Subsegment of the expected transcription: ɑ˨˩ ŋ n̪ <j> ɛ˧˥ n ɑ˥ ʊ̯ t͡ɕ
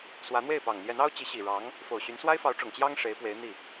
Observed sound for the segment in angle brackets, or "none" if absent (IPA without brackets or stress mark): j